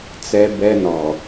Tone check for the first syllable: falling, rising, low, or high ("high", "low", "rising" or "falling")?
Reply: high